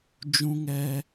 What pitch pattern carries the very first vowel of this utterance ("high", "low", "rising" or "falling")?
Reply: high